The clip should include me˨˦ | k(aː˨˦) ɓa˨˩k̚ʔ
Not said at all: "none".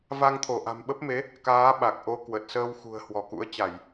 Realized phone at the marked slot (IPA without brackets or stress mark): aː˨˦